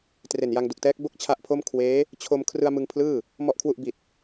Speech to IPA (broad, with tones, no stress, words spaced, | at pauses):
tre˨˩nja˧ŋdu˨˩k̚tɛː˦˥k̚ bo˥˩k̚t͡ɕʰa˦˥ʔpʰo˥˩m kʰweː˦˥ | t͡ɕʰo˧m kʰrɯ˧a̯mɯ˧ŋ pʰlɯː˥˩ | mɔ˨˩ʔkʰwu˨˩ʔ bi˨˩t̚